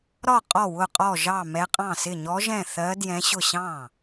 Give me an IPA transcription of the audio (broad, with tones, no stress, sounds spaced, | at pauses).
ɾ ɒ˥˩ qʼ ɔ˥˩ w ʊ˥˩ qʼ ɔ˥˩ ʒ ɑ˥˩ m ɛ˧˥ qʼ ɑ̃˥˩ s ɪ˥˩ ɲ ɔ˧˥ ʒ ɛ̃˥˩ θ ɜ˧˥ d j ɛ̃˧˥ ɕ ʊ˥˩ ɕ ɑ̃˥˩